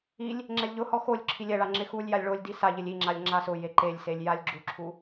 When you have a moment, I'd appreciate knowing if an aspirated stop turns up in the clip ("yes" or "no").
yes